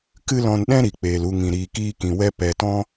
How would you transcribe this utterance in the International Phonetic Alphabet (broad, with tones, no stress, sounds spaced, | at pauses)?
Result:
k ɨ˦ l ɔ̃˧ n ɗ ɛ̃˦ ɾ i˨ k͡p eː˨ l u˧ ŋ ĩ˨ ɾ iː˨ k iː˧ k ĩ˨ w ɛ˧ p ɛ˨ t ɔ̃˧